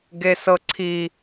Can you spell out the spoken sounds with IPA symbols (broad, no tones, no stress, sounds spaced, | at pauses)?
ɡ e s ɤ ǀʰ i